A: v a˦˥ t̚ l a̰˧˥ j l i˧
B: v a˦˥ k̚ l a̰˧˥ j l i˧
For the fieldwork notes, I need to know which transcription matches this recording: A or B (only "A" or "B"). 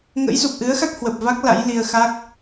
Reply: B